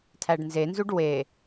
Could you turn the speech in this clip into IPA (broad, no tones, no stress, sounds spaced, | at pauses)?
tʰ æ ɖ n z e n z u ɖ w e